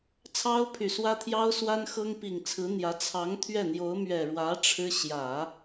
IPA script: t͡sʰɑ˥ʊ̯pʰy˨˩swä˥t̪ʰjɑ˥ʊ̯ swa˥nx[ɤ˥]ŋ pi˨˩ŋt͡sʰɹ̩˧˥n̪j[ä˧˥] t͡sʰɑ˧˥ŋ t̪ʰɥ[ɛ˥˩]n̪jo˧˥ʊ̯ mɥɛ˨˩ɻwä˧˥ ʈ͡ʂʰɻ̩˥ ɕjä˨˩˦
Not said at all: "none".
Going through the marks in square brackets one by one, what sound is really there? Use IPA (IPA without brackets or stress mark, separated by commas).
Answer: ɤ˥, ä˧˥, ɛ˥˩